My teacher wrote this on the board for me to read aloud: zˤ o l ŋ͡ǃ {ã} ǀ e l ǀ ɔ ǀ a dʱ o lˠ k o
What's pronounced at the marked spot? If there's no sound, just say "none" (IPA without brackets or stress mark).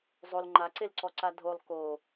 a